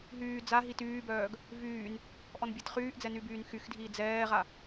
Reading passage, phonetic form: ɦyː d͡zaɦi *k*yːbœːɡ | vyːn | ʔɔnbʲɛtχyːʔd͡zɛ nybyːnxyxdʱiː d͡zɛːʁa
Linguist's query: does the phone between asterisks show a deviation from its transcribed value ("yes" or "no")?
yes